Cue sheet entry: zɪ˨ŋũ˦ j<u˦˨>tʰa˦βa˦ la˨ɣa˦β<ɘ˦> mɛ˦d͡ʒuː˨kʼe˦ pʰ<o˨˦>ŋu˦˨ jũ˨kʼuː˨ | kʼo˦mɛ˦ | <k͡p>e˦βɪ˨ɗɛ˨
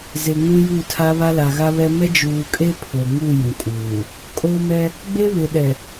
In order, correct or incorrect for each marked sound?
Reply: correct, incorrect: ɛ˦, incorrect: o˨, incorrect: ɡ͡b

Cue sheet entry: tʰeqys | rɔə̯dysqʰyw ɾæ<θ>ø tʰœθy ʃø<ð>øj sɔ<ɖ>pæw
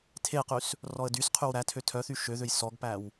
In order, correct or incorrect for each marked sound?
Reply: incorrect: tʰ, correct, incorrect: ɡ

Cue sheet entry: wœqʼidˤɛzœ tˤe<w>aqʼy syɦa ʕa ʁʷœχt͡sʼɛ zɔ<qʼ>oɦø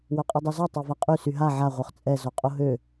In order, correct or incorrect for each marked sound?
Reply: incorrect: v, correct

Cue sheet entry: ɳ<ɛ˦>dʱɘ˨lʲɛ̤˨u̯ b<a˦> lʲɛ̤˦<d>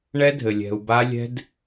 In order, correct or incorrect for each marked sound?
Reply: correct, correct, correct

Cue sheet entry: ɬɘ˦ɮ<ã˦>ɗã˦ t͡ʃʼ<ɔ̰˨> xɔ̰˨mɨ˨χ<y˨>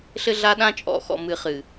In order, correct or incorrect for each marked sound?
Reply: incorrect: a˦, correct, incorrect: ɨ˨

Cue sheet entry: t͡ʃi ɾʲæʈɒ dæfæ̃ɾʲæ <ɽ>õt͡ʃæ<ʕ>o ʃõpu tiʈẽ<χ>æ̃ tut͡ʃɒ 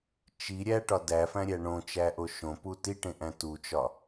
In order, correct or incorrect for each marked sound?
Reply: incorrect: ɳ, incorrect: ʔ, incorrect: ʔ

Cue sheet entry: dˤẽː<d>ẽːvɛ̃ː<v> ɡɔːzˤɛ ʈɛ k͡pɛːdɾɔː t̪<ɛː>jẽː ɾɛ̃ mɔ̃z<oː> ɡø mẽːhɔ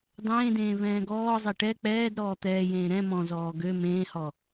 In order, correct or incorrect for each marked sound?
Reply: correct, incorrect: none, correct, incorrect: ɔː

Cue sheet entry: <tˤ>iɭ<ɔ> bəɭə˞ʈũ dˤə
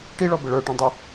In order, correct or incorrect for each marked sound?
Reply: incorrect: ʈ, correct

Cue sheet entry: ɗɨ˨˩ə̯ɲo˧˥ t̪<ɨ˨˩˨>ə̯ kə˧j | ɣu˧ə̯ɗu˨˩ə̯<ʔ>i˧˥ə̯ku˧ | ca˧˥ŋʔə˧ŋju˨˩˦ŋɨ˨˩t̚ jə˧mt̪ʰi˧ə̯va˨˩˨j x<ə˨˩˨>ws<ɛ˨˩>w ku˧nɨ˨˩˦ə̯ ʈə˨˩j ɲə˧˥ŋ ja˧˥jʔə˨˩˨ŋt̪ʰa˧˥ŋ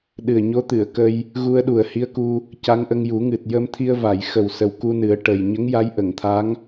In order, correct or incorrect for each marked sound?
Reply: correct, incorrect: h, incorrect: ə˨˩, incorrect: ə˨˩

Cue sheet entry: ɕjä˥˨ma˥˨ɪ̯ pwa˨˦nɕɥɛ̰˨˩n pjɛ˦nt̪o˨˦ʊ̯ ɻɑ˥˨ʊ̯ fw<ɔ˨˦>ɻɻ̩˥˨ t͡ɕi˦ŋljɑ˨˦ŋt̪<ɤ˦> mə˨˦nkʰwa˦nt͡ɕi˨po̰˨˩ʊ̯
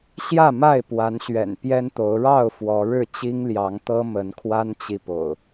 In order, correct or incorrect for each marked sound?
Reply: correct, correct

